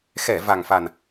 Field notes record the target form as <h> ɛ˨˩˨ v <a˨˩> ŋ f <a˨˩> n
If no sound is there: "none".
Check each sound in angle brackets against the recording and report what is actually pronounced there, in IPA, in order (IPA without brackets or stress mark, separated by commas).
x, a˨˩, a˨˩